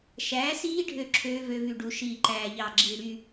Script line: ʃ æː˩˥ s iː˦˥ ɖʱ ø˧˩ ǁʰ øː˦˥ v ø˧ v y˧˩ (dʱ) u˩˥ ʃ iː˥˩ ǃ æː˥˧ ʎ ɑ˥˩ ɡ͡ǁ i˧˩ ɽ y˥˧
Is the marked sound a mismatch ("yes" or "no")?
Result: yes